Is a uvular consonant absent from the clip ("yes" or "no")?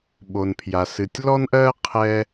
no